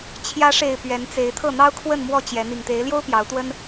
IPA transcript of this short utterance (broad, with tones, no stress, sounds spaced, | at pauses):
t͡ɕʰ j ä˨˦ ʂ e˨˩ ɪ̯ p ɥ ɛ˨˦ n t͡s e˨˦ ɪ̯ t̪ʰ ɤ˥˨ n̪ ɑ˦ ʊ̯ kʰ w ə˥˨ n m w ɔ˥˨ t͡ɕ j ɛ˨˦ n̪ i˨˩ ŋ t̪ e˨˦ ɪ̯ l j o˦ ʊ̯ p j ɑ˨˦ ʊ̯ t̪ w ə˦ n